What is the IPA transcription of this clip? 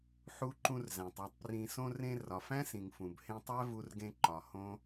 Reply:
ħu˧ǃũ˧r zæ̃˨tˤæ˧tˤprĩ˧ sõ˧rẽ˧ rɒ˨fæ̃˦sĩ˨ŋ fũ˨b hẽ˧tˤæ˦vu˧rɡẽ˧ ǃɒ˨hõ˦

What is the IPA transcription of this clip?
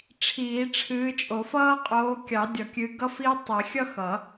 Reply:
ʈ͡ʂʰiː˨˩˦ ʈ͡ʂʰɨː˨˦t͡ʃʼo˨˩˦fʌː˥ qʼoː˨˦kʲɑ˨˩˦dʲʌ˨˩˦kʲɨ˨˦ ɡʌ˥fiː˥ tˤi˨˩˦ xʲʌ˥xʌ˨˩˦

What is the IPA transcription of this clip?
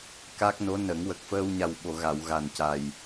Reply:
ka˦˥k̚no˧˥nə˨˩˦ŋwə˨˩k̚ fəː˧wɲa˨˩wɓo˨˩˨ ɣa˨˩˨wɣa˨˩nca˨˩j

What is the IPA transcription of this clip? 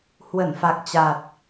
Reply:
hwə˧˩nfa˨˩k̚t͡ɕa˨˩t̚

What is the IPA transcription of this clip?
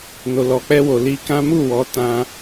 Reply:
no˨ lɔ˨k͡pɛ˧wo˨ li˧kã˦ mu˦˨wɔ˨˦ tã˧

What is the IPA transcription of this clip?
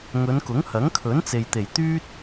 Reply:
ŋɵ˨˧nkʊ˨˥ŋhɐ˨˥ŋ kʰɵ˨˥nt͡se˨j t̪e˨˩jt̪yː˥t̚

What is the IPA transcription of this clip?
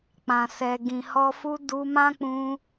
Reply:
k͡pã˨sɛ˨ ɡĩ˨hɔ˧ fu˧ du˧mã˦k͡pũ˧

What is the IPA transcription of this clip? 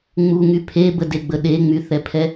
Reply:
ŋ͡muŋy pʰebədeɡ͡bə ɗeŋ͡myθɛpʰɛ

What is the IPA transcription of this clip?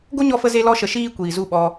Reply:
ɡo˦ɲɔ˧fə˧ ze˦lɔ˦ʃə˧ʃiː˦ kʷiː˨zu˦˨ɓɔ˧

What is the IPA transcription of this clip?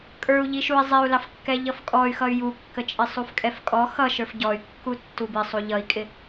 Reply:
kʼə˞u̯ ʎiʃui̯ zˤɪu̯lɑfkːɛ ʎʌfkʼɔy̯xʌy̯ jukːət͡ʃʼɪ sˤufkʼɛfkʼɔ xʌʃə˞f ɟɔy̯ kːutːubɪ sˤuʎʌi̯kʼɪ

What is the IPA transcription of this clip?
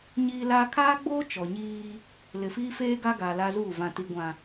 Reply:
ɲiː˦laː˦ kʰaː˦ɡ͡boː˦ t͡ʃɔ˨ɲiː˦ | lɪ˨fiː˦feː˦ ɡa˦ɡa˨ la˦zuː˦˨ vã˨ti˨ɡʷã˨

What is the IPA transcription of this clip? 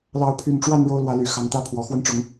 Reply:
lɑ˨˦ʊ̯pʰy˨˩nʈ͡ʂwa˥˨n ɻo˦ʊ̯lwä˨˦ly˨˩ xɑ˨˦ŋt̪ä˦pʰwɔ˨˩ xwə˥˨nʈ͡ʂʊ˨˦ŋ

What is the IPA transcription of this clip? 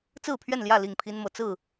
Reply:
t͡sɹ̩˥˨pʰɥɛ˥˨nljä˥˨ li˥˨ŋpʰi˦nmɤ˨ t͡sɹ̩˥˨

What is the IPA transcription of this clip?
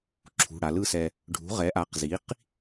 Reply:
ǁʰṳ˩˧˩ɽa˩˧lɯ˥˧sɛ˧ | ɖʱṳ˩˥ʁɛ˩˥ ʔa˩˥qzi˩˥q

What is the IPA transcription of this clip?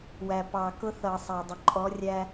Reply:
wæ˨pɑ˨ kʊ˦θʌ˨sˤæ˨dˤə˨ ǃʼɔ˨˦ rʲæ˦

